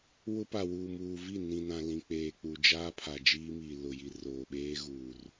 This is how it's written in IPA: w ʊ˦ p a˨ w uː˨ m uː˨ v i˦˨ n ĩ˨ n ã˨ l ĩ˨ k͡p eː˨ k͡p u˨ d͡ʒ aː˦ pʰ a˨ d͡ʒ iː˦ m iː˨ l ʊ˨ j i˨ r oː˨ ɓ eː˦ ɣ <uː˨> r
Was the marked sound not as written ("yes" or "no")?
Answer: no